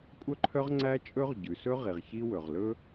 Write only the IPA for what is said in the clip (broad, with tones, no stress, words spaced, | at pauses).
kʷʼœ˥ǃʰœ˥ʁ ŋ͡ǀæ˥t͡ʃʼɵ˥ʁ ɟʉ˩sɵ˥ ʁi˩ʁçi˥ wɵ˩ʁlɵ˥